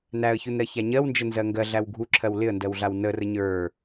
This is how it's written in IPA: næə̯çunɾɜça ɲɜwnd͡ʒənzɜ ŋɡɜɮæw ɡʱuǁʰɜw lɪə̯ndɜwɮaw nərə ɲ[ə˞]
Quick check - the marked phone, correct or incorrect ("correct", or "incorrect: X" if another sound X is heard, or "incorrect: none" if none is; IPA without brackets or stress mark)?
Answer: correct